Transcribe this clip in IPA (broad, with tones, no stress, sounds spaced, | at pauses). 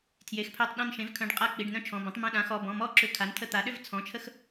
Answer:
tʰ j e˩˧˩ x pʰ œ˧˩ tˤ ɗ ɔ̃˧˩ n ʃ ẽ˩˥ v kʰ œ̃˩˧˩ ɖ qʼ a˧˩ k͡p i˩˧˩ ɖ n œ̃˥˨ t͡ʃʰ ɔ̃˩˧˩ b ɐ̃˩˥ tˤ m ə̃˧˩ ɗ ã˩˥ x ɔ˩˧˩ b ɔ̃˩˧˩ m ɔ˥˨ ǁ ʏ˧˩ kʰ a˩˥ n tʰ ə˧˩ t̪ a˩˥ ɗ ʏ˥˨ v t͡sʰ ɔ̃˩˧˩ t͡ʃʰ ə˥˨ x